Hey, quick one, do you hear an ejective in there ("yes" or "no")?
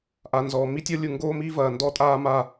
yes